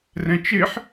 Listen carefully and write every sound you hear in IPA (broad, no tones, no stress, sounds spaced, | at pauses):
r ɛ̃ t͡ʃ ɪ ħ